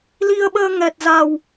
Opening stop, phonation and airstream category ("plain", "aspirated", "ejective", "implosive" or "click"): implosive